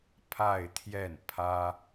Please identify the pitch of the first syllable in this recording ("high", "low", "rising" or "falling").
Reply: falling